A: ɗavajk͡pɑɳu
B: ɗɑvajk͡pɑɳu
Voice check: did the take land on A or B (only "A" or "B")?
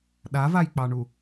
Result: A